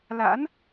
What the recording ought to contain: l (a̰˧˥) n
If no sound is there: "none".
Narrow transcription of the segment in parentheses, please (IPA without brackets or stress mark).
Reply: a̰˧˥